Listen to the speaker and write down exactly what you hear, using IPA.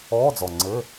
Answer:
ɔː˧˥˧ d͡z ɔ˨˩ ŋ͡ǀ ɘ˧˥˧

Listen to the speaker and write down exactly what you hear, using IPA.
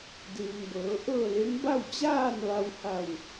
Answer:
d ɯː˩ ŋ b ɤː˩˧ ʔ ɤː˥˨ l e˧˥ ŋ b a˥˨ w t͡ɕ aː˥˨ n ʋ a˧ w h a˧˩ w

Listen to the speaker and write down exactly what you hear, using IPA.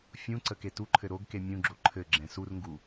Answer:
fʲ ũ ǀ ə k e t u ǃʰ ɘ ɾ o ɡ k e mʲ ũ ɡ͡ǁ o ǃʰ ɘ ɡ͡ǁ ɛ̃ s u r ŋ ɡ u

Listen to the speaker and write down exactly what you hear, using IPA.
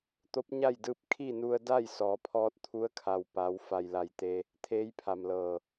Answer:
t̪ o˧˥ p̚ ɲ a˥˨ j d ɯː˧ p̚ kʰ i˥˨ n u˧ ə̯ d a˥˨ j s ɔː˩˧ pʰ ɔː˧˥ t̚ t̪ʰ u˧˥ ə̯ kʰ a˩ w p a˩˧ w f a˧˩ j l a˧˩ j t̪ e˧ | t̪ʰ eː˧˥ j pʰ a˩ m l ɤː˧˩

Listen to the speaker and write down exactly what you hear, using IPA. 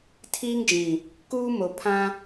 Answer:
tʰ iː˦ ŋ d͡ʒ ĩ˨ | k uː˦ m o˨ pʰ ã˦

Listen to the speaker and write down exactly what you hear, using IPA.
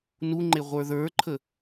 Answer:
n u ŋ͡ǃ e ʁʷ ə˞ ð ə˞ ǃʰ ə

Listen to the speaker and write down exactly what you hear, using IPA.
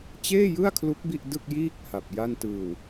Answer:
t͡ɕ eː˥˩ j ɯ˥˩ a̯ kʰ l u˦˥ k̚ b i˥˩ ʔ d ɯ˥˩ k̚ j iː˥˩ k̚ h a˨˩ p̚ j a˥˩ n t ɯː˧ w

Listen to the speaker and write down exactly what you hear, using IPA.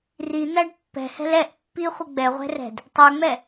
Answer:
r i n̪ æ ɖ pː ɛ̤ h ɛ̤ l ɛ ʔ pː i χʷ ə ɡ͡b ɛ ʁʷ ɛ̤ r ɛ̤ d | tˤ ə˞ ŋ͡m ɛ

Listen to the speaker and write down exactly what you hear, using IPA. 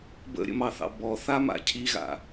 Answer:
b ə̰ ɾʲ ə̰ m ɑ θ ɑ̰ b ɔ θ a m a̰ cʰ i ɣ a̰

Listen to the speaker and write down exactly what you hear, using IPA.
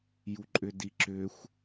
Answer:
j u ǃʼ ʏ d i ǁ ʏ xʷ

